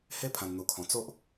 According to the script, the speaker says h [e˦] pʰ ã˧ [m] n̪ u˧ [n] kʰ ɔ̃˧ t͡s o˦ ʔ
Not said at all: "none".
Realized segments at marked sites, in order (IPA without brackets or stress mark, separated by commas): e˦, n, none